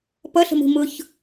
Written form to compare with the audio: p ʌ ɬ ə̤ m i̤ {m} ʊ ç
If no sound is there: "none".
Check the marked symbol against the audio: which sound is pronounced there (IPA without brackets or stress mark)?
m